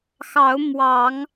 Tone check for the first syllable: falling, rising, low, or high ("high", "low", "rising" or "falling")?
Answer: rising